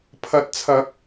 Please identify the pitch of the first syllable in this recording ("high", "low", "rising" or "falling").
rising